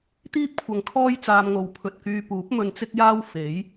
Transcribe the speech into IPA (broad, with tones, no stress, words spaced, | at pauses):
t̪iː˥p̚kʷʰɐ˨˧ŋkʰɔː˥j t͡saː˧mŋo˨w pʰɵ˨t̚kyː˧ puː˨˥p̚mɵ˧nt͡sɪ˥k̚jaː˥w fe˨˥j